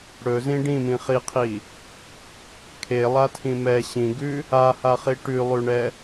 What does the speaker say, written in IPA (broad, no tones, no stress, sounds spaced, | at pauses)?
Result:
ɽ ɵ z ĩ ɖ ĩ m ĩ χ i qʰ i | kʰ e lˠ a tʰ ĩ m ɛ ɕ ĩ ɡ ʉ | a h a χ i ʈ ʉ lˠ ʉ ɳ ɛ